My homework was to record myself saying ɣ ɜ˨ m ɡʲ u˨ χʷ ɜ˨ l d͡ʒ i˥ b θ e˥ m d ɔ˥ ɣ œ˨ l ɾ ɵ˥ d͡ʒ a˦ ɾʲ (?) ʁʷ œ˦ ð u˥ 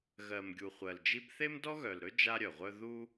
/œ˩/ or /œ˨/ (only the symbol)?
œ˩